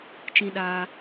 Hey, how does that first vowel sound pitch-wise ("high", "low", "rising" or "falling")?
high